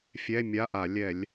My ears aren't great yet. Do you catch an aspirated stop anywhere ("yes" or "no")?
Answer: no